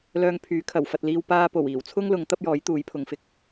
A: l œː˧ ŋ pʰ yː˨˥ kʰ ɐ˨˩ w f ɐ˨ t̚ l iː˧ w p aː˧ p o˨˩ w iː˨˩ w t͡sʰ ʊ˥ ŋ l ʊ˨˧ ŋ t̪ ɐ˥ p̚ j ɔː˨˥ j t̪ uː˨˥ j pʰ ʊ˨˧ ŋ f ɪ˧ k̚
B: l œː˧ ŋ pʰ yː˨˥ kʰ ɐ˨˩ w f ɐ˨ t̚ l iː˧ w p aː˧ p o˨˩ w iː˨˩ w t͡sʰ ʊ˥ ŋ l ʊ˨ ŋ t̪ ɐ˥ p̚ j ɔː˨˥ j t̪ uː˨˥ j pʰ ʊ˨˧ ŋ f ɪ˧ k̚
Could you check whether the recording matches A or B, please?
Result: A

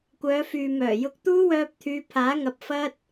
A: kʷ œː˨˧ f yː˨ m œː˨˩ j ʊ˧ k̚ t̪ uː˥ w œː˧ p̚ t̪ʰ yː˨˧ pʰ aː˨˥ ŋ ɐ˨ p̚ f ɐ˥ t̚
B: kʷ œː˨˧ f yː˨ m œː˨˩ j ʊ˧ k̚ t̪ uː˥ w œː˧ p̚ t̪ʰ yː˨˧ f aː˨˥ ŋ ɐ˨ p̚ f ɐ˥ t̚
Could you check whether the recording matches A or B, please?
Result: A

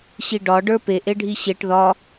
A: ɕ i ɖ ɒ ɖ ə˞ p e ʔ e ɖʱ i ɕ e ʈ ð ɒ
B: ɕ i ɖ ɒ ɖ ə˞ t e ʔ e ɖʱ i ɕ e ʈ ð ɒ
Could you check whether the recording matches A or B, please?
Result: A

